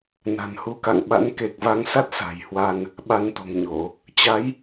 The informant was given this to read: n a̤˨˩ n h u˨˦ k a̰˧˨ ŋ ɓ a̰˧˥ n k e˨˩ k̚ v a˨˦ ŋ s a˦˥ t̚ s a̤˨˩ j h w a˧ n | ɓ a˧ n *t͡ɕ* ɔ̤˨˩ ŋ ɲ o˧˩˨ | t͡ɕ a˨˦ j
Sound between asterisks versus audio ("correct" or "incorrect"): incorrect